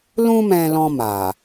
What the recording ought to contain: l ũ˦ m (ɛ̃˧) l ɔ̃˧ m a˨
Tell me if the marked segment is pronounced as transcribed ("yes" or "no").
yes